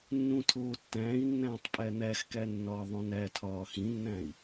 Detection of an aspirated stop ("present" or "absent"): present